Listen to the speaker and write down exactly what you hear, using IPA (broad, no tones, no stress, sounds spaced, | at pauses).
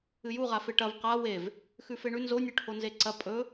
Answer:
ɨ j u ʁ a f e ʈ ɐ v q a w e v | x ʉ f e ɳ ʉ n z o nʲ ɵ ʈʰ o n z e ǀ ɐ pʼ ɵ